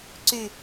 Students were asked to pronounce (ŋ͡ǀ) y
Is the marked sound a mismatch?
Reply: yes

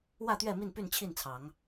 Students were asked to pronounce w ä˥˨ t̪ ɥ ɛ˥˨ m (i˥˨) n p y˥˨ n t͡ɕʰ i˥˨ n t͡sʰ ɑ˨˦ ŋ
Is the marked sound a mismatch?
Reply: no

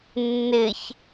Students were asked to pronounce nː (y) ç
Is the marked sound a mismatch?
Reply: yes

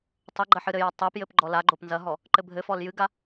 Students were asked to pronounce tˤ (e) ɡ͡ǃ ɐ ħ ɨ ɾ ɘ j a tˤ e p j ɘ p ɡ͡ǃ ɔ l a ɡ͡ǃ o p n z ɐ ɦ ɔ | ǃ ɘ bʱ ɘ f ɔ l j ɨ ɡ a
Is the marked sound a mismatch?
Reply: yes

